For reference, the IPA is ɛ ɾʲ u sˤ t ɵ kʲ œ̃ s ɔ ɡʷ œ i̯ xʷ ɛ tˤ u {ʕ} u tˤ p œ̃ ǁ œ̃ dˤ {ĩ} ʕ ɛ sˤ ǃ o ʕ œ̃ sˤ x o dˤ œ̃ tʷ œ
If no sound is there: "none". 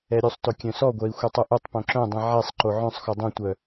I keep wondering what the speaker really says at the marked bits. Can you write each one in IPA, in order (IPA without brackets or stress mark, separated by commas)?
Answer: ʔ, ĩ